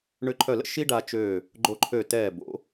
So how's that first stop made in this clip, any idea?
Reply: click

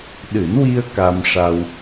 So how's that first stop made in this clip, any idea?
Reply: implosive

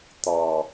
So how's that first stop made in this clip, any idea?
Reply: plain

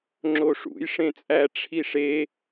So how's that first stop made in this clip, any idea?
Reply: click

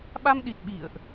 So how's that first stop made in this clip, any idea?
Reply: implosive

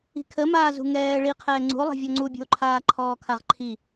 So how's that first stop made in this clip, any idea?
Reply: aspirated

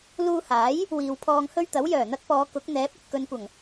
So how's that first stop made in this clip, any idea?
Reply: aspirated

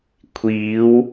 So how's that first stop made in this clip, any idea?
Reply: aspirated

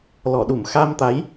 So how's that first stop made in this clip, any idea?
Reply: implosive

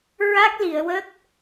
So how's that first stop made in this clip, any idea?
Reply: plain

